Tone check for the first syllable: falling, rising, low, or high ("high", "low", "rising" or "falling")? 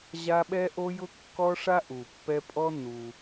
high